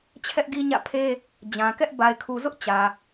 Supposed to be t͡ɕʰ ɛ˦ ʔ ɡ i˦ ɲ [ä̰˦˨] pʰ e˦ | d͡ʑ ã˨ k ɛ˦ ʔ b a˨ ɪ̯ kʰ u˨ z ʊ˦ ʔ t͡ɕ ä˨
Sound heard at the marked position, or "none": ä̰˦˨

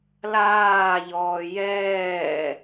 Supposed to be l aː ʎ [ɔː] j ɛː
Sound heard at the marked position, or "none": ɔː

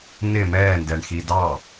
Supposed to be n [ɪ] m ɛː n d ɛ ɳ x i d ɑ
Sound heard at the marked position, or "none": ɪ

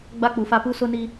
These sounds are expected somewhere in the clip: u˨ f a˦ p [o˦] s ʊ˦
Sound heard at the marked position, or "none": u˦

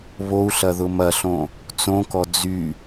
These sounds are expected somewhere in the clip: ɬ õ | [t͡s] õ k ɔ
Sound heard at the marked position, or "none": t͡s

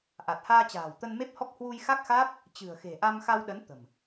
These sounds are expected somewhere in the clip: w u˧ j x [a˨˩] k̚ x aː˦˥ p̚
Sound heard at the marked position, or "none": a˦˥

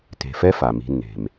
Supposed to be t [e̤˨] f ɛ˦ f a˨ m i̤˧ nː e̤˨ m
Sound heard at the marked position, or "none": e̤˨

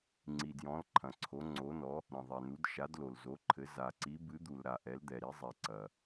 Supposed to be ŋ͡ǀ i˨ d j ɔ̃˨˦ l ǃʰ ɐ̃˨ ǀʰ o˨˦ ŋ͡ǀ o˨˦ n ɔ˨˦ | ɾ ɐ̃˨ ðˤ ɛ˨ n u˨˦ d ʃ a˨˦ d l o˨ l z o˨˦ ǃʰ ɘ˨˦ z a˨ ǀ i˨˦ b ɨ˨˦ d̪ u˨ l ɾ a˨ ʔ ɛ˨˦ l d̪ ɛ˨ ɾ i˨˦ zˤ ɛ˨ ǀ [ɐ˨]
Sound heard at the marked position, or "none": ɐ˨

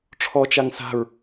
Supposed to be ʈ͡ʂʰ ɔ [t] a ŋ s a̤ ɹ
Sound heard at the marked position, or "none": t͡ʃ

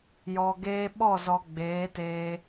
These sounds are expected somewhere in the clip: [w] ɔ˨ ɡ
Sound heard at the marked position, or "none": j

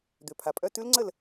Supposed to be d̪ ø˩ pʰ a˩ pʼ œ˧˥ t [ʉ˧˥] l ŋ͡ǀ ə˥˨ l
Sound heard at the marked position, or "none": ʉ˧˥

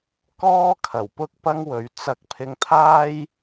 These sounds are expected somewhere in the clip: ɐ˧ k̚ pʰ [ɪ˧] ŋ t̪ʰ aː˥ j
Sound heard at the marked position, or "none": ɪ˧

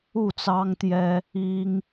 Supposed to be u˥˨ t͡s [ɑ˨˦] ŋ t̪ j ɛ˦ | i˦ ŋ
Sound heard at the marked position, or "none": ɑ˦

